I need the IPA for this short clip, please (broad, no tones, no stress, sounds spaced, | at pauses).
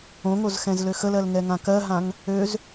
õ ŋ o z x ɛ̃ z l ø x ə l ɜ l ŋ ɛ ŋ ã k ɜ ɦ ã ŋ | ø z